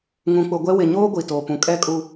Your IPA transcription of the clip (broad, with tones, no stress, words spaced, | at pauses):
ŋũ˨k͡pʊ˨ɡʷɛ˦ wɪ˨ɲoː˦ ɡʷi˨toː˨pũ˨ kʼɛ˦kʼu˦